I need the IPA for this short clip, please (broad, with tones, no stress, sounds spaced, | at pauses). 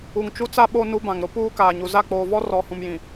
u˨ ŋ t͡ʃ u˦ t͡s a˦ ɓ o˦ n u˦ b ã˨ ŋ ɾ ʊ˦ p uː˦ k aː˨ ɲ u˨ z a˦˨ k͡p oː˨ v ɔ˦ r ɔ˨ h ũ˨ m j ĩ˨